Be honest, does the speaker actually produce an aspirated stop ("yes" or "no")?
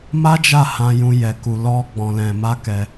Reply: no